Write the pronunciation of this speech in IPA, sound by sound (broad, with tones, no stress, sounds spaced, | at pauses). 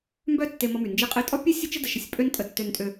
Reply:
m b œ˥ tː e˧ m ɔ˧ m y˩ n d͡ʒ e˧ qʼ e˧ tʼ ɔ˥ pʲ e˥ sʲ ə˥ t͡ʃ ə˥ d ə˩ ʃ ə˧ sʲ pʼ ø˥ n tʼ ə˧ tː ø˧ n tʼ ø˧